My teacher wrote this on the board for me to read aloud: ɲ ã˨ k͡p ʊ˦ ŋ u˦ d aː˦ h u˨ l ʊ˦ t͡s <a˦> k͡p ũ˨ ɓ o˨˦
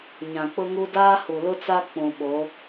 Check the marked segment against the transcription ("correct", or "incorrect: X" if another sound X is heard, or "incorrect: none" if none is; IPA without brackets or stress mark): correct